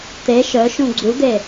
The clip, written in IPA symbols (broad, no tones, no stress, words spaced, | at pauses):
t̪e ʃœ ʃũɡ͡ǀud̪e